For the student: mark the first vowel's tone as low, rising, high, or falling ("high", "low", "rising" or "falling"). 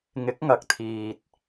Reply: rising